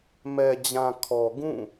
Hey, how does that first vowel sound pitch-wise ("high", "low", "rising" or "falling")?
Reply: low